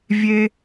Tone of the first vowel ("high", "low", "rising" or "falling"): high